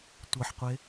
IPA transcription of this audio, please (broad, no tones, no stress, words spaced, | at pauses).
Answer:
tʷɤħqʷe